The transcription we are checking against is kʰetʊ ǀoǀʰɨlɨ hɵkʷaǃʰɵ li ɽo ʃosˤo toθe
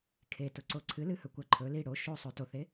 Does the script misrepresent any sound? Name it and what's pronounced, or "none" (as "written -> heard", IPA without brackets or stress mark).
none